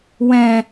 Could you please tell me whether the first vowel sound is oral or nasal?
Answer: nasal